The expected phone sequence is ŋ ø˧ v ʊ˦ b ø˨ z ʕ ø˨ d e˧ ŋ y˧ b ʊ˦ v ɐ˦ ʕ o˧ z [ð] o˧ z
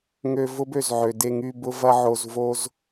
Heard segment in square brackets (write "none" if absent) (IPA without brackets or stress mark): v